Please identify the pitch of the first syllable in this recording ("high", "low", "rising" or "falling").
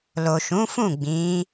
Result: low